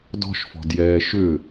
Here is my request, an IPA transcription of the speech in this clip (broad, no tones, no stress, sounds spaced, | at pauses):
d ɔ̤ ʃ f ɔ̤ d j ɛː ʃ ʏ